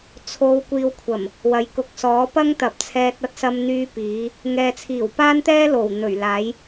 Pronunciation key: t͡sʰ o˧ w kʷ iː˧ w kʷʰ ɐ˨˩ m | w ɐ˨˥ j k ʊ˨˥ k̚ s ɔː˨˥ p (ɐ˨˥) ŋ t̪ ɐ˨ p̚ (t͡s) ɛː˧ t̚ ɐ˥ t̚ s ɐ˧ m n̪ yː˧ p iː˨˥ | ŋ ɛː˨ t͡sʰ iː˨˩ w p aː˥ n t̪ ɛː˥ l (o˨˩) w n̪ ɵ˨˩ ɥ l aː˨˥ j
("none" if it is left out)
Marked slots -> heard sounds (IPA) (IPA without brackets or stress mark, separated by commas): ɐ˥, t͡sʰ, o˨˩